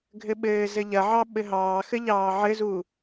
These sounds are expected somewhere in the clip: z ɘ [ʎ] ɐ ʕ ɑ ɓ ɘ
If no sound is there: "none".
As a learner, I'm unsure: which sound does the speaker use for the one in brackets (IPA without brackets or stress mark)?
ʎ